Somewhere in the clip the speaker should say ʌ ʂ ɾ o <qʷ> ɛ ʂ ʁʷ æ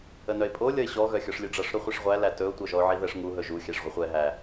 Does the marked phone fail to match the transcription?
yes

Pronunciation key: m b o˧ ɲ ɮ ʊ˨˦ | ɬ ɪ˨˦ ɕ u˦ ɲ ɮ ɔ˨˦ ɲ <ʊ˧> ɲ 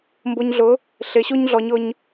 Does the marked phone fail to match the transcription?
no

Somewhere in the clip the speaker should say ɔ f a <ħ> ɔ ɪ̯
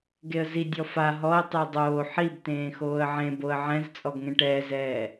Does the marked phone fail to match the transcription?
yes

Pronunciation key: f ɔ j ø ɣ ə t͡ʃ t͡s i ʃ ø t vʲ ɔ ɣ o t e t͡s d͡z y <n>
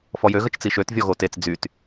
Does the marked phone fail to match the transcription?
yes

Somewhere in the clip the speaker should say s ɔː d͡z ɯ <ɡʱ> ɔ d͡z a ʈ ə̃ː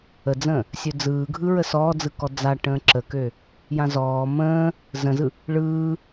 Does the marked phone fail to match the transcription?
yes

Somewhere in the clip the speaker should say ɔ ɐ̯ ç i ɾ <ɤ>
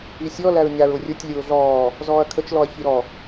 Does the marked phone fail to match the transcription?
yes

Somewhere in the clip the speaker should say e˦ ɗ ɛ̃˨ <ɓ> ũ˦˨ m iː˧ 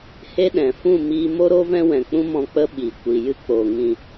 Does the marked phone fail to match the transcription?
yes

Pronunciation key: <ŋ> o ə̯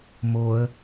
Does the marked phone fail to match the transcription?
yes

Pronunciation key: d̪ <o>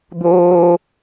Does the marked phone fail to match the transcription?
yes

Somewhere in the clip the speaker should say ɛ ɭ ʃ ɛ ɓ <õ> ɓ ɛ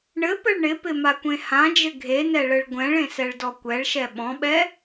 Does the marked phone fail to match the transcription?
yes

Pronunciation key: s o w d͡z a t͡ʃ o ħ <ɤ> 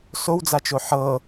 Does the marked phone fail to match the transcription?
no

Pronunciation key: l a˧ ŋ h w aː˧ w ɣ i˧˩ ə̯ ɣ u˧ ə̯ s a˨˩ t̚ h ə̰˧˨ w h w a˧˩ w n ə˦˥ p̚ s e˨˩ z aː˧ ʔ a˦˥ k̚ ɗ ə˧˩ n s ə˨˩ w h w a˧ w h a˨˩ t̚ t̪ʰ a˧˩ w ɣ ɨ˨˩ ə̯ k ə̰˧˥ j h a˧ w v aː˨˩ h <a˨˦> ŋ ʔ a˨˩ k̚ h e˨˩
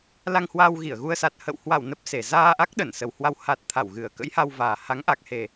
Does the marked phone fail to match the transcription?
no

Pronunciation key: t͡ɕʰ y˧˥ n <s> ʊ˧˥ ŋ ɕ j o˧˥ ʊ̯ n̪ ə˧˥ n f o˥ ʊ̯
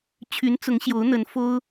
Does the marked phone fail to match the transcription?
yes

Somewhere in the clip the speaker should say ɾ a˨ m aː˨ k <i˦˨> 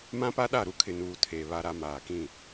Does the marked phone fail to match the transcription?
yes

